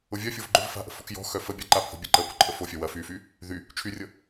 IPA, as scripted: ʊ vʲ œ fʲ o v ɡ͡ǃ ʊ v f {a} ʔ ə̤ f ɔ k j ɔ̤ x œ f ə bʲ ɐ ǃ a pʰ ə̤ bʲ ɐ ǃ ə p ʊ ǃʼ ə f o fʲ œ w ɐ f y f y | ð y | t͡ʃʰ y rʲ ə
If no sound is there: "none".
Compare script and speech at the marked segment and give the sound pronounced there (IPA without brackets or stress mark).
a̤